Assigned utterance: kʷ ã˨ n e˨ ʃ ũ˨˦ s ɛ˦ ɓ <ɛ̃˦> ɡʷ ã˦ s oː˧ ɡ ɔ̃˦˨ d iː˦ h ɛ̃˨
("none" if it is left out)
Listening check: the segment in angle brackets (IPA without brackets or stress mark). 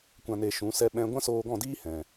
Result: ɛ̃˦